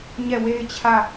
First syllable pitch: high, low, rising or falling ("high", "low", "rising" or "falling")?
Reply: falling